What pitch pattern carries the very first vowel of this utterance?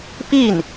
falling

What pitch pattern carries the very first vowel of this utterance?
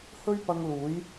high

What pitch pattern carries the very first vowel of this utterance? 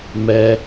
high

